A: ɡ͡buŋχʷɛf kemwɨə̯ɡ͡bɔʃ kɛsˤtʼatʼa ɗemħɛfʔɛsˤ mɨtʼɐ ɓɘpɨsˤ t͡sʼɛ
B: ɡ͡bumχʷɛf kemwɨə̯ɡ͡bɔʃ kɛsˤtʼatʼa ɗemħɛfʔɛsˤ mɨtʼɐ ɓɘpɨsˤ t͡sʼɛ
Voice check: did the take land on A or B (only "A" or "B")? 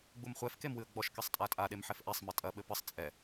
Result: B